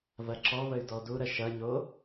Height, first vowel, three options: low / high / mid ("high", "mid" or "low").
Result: low